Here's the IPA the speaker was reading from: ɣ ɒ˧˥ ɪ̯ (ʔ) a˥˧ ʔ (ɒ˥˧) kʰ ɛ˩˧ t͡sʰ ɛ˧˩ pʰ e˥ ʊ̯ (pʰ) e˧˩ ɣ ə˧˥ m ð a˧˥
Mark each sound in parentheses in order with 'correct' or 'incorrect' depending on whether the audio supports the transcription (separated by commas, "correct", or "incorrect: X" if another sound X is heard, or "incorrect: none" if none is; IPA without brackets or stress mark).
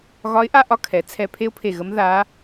correct, correct, correct